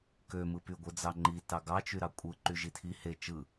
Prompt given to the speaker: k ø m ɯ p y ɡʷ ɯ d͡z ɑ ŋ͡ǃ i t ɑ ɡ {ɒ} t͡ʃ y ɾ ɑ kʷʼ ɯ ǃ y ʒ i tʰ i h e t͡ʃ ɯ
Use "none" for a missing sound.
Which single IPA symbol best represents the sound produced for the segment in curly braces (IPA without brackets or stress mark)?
ɑ